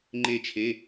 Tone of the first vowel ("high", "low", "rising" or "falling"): falling